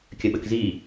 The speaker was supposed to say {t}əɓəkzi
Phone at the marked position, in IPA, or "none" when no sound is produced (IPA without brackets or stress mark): kʲ